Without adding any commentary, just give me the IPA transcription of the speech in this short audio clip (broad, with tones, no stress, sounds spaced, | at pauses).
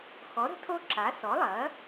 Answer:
x ɔ˩˥ ɾ ə̤˩˥ tʰ o˦ ǁ a˩˥ s ɔ˩˥ lˠ ɐ˩˥